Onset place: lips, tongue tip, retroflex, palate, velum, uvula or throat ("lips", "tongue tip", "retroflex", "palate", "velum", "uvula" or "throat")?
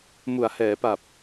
lips